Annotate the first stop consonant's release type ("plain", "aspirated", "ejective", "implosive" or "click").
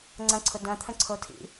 click